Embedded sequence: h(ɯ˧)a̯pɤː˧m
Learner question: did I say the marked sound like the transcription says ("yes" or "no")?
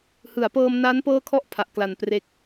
no